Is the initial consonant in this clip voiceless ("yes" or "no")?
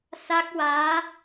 yes